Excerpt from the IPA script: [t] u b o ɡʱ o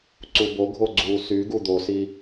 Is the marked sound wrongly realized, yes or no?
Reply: yes